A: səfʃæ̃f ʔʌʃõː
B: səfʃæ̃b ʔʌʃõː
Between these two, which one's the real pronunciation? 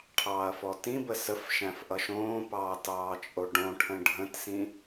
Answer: A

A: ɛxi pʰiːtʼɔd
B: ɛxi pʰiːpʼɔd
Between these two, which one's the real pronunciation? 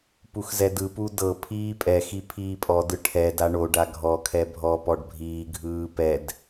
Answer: B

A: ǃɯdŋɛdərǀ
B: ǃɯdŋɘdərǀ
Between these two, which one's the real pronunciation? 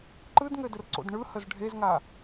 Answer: B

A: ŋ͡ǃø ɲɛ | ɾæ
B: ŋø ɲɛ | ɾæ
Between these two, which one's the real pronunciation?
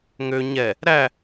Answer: B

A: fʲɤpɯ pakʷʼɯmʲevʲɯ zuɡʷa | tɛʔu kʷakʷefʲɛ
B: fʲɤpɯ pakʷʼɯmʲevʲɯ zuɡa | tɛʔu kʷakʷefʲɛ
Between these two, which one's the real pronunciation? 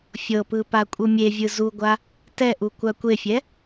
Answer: A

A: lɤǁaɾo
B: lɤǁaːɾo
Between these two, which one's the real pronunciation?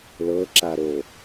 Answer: A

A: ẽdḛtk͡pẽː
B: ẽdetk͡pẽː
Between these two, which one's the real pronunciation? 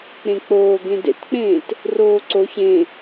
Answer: A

